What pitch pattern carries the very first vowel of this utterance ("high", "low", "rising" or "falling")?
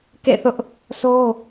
falling